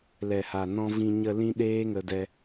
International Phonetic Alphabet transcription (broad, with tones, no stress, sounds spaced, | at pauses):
l ɛ˨ h a˨ n ɔ̃˧ v ĩ˧ ɲ ə˧ l ĩ˦ ɗ eː˦ ŋ ə˧ d ɛ˧